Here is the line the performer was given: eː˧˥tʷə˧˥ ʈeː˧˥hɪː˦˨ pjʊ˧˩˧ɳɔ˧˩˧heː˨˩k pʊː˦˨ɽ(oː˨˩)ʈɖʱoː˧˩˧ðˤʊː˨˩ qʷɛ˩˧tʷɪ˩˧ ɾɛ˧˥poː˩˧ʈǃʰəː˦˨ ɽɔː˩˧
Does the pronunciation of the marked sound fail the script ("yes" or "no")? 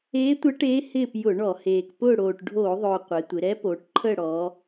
no